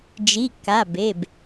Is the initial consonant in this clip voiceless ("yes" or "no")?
no